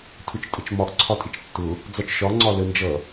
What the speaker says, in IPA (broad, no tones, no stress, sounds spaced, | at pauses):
tʰ ʊ t͡ʃ tʼ ə t͡ʃ m ɒ ʔ ǀʰ ɒ tʼ ɪ t͡ʃ tː ʊ | d͡z ɒ t͡ʃ ʃ ɒ ŋ͡ǀ ɒ l ə n d͡ʒ ʌ